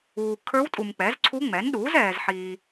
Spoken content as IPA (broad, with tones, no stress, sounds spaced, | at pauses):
uː˨ kʰ ə˞˧˥ w tʼ u˨ m k͡p ɛ˩˥ z ǀʰ u˧˥ ŋ͡m ɛ˩˥ n ɗ uː˩˥ z ɛː˨ z ħ iː˨